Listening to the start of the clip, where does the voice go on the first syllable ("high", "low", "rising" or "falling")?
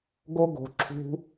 high